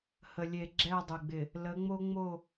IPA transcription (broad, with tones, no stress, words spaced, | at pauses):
hə˨lʲe˨ ɡ͡ǁɛ˦˨dˤɪ˨ɡ͡bɪ˨ | lə˨˦ŋ͡mo˦ŋ͡mo˦˨